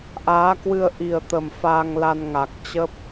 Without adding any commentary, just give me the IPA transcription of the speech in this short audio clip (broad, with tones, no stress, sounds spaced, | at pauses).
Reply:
ʔ aː˨˦ k w ɨ˧ ə̯ ʔ i˨˩ ə̯ t̪ ə˨˩ m f aː˧ ŋ l a˧ n ŋ a˨˩ k̚ t͡ɕ ə˦˥ p̚